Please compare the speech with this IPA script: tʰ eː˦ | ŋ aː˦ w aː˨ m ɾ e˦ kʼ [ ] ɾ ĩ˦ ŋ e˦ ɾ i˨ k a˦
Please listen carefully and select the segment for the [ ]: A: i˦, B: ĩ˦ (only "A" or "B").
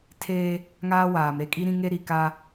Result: A